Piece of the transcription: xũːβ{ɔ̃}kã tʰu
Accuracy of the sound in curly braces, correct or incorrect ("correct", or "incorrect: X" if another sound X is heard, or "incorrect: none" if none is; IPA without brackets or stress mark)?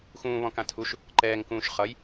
correct